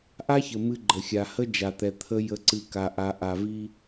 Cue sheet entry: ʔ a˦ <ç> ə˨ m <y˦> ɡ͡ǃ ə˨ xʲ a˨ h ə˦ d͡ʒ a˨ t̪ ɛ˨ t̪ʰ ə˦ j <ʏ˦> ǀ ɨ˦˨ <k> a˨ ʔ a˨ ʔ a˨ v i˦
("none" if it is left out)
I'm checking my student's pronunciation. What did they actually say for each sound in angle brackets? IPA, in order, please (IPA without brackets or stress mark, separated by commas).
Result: ç, ɨ˦, ə˦, k